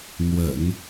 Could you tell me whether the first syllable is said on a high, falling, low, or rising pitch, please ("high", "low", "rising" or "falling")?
low